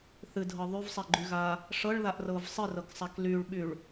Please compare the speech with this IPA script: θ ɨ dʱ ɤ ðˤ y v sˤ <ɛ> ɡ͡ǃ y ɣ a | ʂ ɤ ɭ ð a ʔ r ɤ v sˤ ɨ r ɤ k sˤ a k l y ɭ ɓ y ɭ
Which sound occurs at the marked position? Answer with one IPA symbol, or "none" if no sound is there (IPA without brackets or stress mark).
ɛ